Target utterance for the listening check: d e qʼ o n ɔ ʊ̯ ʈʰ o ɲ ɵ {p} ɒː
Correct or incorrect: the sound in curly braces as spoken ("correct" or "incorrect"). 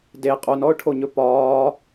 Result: correct